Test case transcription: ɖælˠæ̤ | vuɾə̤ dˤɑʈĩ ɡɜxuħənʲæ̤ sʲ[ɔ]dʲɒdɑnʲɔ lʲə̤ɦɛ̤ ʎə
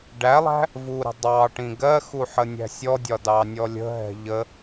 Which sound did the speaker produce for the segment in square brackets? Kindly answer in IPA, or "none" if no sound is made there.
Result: ɔ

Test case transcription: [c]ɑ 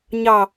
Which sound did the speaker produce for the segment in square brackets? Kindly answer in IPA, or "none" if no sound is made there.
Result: ɲ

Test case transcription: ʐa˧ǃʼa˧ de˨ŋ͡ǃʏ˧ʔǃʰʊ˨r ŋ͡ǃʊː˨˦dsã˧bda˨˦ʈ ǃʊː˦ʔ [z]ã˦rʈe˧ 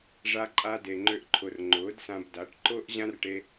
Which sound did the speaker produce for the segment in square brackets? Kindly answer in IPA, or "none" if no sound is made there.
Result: ʑ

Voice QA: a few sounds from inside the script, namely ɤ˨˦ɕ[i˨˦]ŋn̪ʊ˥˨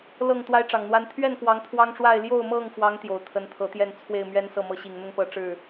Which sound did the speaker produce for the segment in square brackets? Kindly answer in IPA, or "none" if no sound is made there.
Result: i˨˩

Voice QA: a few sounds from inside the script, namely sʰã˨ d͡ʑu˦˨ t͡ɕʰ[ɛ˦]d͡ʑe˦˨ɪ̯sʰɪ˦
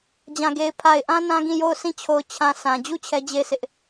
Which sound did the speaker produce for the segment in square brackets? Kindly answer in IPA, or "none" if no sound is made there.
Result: ɛ˦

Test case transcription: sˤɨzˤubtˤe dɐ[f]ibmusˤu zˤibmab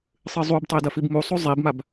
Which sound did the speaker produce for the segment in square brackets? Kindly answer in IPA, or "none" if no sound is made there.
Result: f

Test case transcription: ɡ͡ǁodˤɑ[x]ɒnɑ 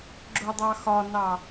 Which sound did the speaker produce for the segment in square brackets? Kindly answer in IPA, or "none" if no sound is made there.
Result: x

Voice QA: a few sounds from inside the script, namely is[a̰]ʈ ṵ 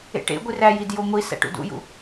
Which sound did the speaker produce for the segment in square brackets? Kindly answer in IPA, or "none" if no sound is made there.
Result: æ̰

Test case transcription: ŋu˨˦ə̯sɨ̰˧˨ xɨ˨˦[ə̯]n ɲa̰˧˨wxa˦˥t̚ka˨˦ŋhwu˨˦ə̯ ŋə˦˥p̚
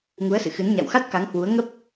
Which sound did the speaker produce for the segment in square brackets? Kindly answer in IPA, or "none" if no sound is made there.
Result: none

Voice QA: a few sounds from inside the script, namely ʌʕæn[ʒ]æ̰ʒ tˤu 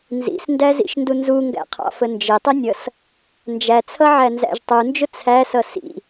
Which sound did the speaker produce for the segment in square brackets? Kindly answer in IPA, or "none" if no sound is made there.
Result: z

